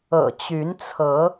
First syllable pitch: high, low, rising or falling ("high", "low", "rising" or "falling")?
low